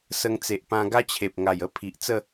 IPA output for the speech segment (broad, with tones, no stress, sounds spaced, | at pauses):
s ə˧ ŋ t͡s e˨ ʔ p ã˧ ɡ a˦ t͡ɕʰ e˨ p̚ ŋ a˨˩ j ə˦ pʰ i˨ ʔ t͡s ə˥˧